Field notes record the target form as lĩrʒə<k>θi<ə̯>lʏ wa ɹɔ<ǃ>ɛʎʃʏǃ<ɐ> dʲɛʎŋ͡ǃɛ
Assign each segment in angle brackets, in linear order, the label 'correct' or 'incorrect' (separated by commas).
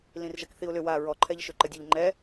correct, incorrect, incorrect, incorrect